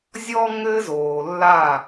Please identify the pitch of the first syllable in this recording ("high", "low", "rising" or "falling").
high